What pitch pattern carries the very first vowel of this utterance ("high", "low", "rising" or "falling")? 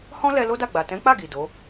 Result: high